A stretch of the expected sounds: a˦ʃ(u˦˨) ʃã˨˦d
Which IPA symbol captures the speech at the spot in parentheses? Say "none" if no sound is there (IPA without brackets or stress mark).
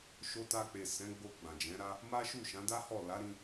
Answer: u˦˨